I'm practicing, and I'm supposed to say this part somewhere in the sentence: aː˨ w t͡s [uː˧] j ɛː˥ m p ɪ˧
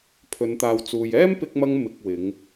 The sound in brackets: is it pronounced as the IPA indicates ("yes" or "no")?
no